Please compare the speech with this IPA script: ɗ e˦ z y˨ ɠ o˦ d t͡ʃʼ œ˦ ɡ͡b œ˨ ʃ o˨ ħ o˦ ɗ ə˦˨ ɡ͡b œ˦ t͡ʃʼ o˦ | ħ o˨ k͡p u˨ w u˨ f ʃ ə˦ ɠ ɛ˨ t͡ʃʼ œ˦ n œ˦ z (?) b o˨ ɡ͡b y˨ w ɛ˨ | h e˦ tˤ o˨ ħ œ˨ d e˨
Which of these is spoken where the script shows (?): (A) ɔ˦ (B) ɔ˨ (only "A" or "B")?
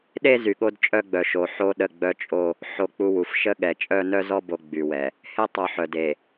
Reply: A